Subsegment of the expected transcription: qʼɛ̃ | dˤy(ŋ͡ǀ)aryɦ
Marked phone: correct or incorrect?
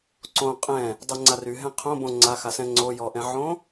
correct